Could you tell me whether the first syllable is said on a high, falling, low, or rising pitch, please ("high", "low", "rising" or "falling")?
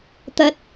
rising